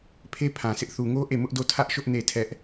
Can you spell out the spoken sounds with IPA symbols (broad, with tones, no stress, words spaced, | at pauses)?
pʰe˦pʰã˨sɪ˦ʔ θu˨ŋo˦ ʔe˦˨mʊ˦ʔdo˦˨ tʰä˦ʔʃʊ˦ʔ ne˦˨tʰɛ˦ʔ